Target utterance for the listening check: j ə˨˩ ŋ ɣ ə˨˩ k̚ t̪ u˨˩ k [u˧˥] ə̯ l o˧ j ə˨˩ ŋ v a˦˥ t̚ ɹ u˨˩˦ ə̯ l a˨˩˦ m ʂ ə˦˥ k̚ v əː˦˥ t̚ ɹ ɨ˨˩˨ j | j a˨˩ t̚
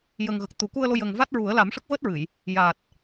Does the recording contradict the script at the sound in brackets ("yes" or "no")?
yes